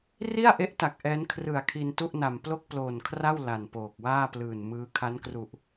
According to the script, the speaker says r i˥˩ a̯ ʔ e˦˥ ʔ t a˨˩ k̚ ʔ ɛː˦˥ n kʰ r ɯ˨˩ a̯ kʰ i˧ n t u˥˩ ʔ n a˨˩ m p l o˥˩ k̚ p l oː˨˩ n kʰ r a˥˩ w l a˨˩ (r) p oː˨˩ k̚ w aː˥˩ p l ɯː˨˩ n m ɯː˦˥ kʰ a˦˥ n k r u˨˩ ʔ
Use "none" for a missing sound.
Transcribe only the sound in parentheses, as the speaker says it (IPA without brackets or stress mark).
n